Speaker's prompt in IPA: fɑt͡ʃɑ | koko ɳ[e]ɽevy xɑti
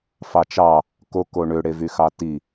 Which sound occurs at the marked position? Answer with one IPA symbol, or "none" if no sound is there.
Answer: ø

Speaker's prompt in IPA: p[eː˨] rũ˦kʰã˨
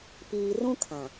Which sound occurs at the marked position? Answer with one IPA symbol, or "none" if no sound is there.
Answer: iː˨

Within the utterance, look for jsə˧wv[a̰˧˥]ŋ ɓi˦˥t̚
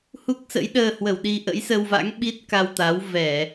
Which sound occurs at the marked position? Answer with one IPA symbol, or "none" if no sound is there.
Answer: a̰˧˥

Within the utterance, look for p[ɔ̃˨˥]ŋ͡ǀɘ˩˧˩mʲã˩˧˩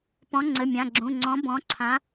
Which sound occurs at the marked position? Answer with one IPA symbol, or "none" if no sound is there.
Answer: ɔ̃˨˥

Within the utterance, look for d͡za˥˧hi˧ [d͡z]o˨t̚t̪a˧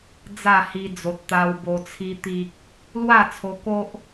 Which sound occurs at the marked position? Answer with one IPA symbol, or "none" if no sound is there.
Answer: d͡z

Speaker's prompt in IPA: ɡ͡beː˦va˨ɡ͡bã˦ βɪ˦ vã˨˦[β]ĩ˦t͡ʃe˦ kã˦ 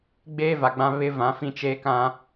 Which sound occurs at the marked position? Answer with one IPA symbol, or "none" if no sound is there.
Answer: f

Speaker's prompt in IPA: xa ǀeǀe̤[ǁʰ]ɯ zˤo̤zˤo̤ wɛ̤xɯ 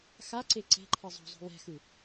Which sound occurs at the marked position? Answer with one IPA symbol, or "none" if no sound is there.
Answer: ǃʰ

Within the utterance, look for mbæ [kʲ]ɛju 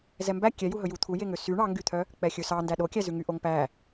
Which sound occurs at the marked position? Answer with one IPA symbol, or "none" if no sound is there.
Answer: kʲ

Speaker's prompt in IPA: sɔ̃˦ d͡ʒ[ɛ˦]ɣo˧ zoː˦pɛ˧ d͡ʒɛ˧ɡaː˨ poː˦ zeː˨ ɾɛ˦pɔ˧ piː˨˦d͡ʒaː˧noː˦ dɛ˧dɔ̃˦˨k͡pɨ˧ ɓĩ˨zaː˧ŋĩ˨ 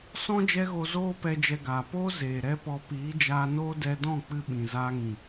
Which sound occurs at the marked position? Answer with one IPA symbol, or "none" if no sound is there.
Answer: ɛ˦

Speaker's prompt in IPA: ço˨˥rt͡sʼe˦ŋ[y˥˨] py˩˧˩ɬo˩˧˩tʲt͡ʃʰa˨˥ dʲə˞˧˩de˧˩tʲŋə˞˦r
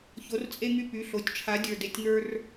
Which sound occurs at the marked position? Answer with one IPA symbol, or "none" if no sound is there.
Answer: y˦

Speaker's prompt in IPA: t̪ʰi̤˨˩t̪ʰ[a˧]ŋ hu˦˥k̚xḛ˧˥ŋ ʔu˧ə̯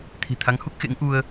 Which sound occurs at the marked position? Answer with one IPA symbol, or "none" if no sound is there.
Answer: a˨˦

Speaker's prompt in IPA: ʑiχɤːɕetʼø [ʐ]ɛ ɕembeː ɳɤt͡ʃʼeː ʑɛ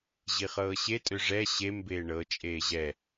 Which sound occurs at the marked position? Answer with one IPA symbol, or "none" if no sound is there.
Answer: ʐ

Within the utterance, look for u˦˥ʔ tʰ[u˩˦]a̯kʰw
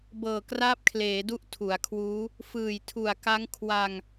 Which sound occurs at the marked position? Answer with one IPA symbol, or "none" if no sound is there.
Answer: u˩˦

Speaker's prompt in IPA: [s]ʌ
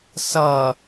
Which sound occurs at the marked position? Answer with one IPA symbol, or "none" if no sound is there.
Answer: s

